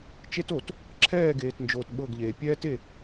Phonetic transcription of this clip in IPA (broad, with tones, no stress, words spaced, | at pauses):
t͡ʃe˦to˨t | ǁʰɛː˦˨ɡeː˨tnd͡ʒoː˨t ɓɤ˦˨ɡʎeː˨ pʲɛː˦te˦˨